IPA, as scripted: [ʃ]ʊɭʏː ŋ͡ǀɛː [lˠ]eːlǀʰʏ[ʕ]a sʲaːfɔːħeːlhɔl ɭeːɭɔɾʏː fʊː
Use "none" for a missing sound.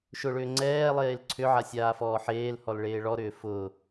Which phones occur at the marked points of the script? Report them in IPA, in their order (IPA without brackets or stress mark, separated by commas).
ʃ, lˠ, ʕ